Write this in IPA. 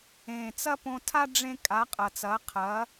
ẽ˨˩ t͡s ɐ˥ p õ˧ tʰ a˥ ɖ͡ʐ ẽ˥ kʼ a˨˥ qʼ ɐ˨˩ t͡s ɐ˨˥ qʰ ɐ˨˥

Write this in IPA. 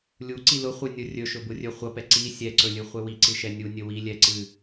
lʲ u ǀ i l ʊ χʷ ɨ nʲ ʊ rʲ ɵ ʃ ɵ b ʊ rʲ ɵ χʷ ʌ p ɛ ǀ i sʲ ɛ ǀ ɵ lʲ ɨ χʷ ɛ w i ǀ ɨ ʃ ɛ nʲ u nʲ ɵ w i lʲ ɛ ǀ ɨ

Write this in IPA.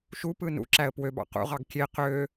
ʃ u p ɯ n ṵ ǁ æ ə̯ p w ø b ɑ̰ q ṵ ʁ ɑ ɡ kʲ e q ø

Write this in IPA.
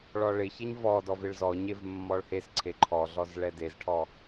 ɭ ɔ ɭ ɪ ç ɛ ɲ v ɔ d ɔ v ɪ ɭ z ɔ ɲ e v mː ɔ ɭ h e s ǀʰ e ǃʰ ɔ ɮ ɔ z ɭ ɛ d e z ʈʰ ɔ

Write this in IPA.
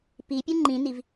p i pʲ u ŋ͡ǃ ĩ n i v

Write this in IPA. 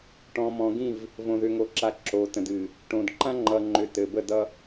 ʈ ɔ̃˨ m ɔ̃˨ ɡ ĩ˦˨ v | v õ˨ ð ʏ˨ ŋ o˨ ǁ a˨˦ ǁ o˨ t ə̃˨ d ɨ˨ | ʈ õ˨ d ǃ ã˦ ŋ͡ǃ ʌ˨ ŋ͡ǃ ʏ˨ t ɘ˨ b ə˦˨ d ʌ˦

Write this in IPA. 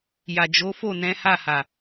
j a˨ d͡ʒ o˨˦ f o˦˨ n ɛ̃˨˦ h a˦˨ h a˨

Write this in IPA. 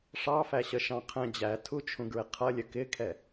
ʂ ɑ f æ ɕ ə ʃ ɑ̃ qʰ ɛ̃ d͡ʑ æ tʰ u t͡ʃʰ ũ ɡ ɹ ɪ qʰ ʌ lʲ ə k ɪ kʰ ɛ

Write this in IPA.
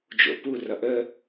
d͡ʒ o̰ p u r ʌ ʔ ə

